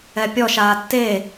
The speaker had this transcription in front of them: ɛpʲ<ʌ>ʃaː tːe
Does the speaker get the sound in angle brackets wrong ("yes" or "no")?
yes